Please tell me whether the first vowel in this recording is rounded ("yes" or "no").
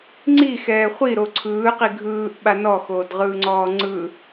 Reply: no